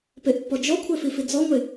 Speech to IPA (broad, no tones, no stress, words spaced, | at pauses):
peʔpːɔd͡ʒɔkʷʰɛ fifid͡zɔŋʷe